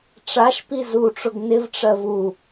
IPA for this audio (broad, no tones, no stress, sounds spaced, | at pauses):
ʈ͡ʂ a ʃ p i z u ʈ͡ʂ ʊ ɡ n ɪ v ʈ͡ʂ ɜ v u